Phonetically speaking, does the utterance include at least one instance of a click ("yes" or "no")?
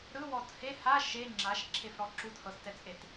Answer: yes